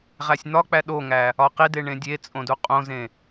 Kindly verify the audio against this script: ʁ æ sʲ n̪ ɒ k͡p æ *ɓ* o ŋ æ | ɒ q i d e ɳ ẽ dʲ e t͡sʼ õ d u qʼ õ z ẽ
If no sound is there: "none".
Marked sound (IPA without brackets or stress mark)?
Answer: ɗ